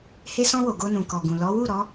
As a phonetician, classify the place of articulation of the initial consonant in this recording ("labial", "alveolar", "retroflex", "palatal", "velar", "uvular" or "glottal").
glottal